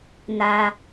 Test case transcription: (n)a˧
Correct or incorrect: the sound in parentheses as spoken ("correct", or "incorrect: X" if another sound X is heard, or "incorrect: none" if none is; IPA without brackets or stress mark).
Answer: correct